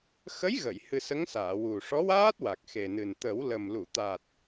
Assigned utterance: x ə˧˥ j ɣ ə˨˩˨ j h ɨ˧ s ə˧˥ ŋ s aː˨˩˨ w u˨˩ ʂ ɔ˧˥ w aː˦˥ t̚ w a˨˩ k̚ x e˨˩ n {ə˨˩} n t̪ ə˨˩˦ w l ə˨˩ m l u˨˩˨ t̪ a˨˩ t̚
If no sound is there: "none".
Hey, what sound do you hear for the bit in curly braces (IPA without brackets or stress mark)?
ɨ˨˩